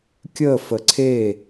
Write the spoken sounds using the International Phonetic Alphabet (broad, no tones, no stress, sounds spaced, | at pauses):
kʲ ə f ə ǀʰ e